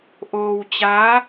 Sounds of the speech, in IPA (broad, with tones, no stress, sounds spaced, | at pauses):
ʔ oː˧ w t͡ɕ aː˦˥